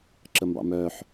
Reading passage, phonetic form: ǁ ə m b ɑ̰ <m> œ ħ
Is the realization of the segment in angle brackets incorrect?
no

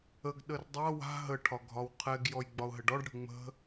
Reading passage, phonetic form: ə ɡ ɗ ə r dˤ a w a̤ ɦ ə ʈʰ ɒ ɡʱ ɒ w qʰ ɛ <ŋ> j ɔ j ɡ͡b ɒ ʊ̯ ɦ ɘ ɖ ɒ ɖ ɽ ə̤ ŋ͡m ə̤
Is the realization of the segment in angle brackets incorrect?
yes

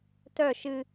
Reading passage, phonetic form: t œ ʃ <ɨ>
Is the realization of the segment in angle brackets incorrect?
no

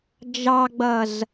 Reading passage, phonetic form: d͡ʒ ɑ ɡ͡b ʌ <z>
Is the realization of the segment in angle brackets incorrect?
no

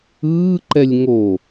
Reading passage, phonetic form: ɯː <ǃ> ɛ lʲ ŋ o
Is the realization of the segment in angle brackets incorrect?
no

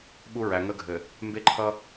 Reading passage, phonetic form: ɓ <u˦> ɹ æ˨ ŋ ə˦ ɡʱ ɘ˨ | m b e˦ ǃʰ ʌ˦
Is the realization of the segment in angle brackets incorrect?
no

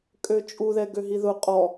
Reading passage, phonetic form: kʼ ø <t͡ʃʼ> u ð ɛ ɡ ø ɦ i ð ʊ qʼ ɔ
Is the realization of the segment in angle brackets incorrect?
no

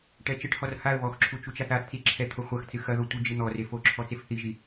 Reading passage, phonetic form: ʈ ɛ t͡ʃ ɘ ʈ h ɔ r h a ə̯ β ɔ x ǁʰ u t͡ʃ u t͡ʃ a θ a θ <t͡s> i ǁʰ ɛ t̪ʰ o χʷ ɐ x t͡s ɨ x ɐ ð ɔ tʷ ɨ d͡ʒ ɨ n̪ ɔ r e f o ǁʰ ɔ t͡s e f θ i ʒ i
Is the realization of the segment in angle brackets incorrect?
no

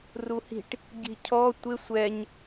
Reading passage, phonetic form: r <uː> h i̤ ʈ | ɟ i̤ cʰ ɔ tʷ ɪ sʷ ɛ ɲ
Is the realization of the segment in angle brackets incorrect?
yes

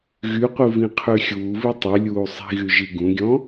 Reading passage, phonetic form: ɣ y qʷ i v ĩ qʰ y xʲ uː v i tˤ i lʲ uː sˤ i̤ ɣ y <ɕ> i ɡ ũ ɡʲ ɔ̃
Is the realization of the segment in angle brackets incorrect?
yes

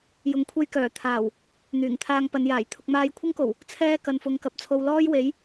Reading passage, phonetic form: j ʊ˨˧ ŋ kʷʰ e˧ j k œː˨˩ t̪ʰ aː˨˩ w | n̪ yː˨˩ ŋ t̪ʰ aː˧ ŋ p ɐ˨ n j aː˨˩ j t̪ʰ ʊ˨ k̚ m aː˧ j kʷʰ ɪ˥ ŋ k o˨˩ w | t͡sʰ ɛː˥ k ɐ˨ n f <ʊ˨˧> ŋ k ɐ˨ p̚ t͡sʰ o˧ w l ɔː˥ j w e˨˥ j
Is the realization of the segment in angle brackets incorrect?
no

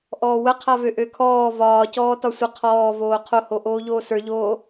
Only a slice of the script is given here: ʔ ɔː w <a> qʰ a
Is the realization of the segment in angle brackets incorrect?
yes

